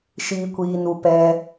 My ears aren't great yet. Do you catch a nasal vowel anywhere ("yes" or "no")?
no